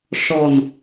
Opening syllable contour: low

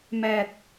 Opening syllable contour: low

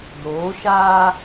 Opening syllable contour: rising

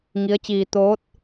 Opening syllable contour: rising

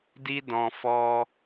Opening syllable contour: high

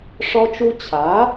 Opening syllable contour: high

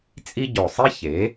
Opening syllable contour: high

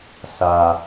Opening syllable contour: low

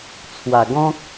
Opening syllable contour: low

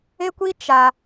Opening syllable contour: high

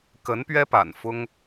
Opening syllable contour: rising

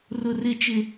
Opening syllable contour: low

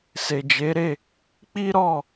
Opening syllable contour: low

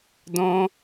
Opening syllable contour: high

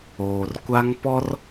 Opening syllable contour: low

